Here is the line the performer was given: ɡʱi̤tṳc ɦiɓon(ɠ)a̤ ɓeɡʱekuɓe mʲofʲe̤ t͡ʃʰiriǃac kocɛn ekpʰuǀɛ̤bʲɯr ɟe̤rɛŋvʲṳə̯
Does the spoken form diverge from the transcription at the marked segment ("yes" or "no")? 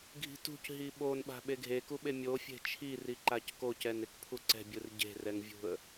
yes